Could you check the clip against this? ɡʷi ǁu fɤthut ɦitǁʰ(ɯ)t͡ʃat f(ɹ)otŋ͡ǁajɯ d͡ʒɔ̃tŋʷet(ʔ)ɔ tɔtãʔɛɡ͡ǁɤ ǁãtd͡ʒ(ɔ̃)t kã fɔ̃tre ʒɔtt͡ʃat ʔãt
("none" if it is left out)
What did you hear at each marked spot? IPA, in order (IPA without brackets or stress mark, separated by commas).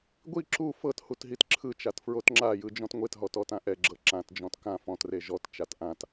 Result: ɯ, ɹ, ɦ, ɔ̃